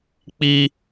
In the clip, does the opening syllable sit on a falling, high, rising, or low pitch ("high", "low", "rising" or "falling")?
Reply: high